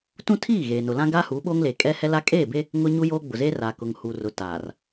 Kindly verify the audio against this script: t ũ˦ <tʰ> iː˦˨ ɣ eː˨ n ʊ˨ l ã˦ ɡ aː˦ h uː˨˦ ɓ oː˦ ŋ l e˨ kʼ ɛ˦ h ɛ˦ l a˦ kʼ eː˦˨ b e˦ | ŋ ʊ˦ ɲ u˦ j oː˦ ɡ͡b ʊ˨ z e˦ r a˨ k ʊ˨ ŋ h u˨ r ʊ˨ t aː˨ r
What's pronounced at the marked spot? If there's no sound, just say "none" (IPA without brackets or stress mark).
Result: tʰ